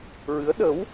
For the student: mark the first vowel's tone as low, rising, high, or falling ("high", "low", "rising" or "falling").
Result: rising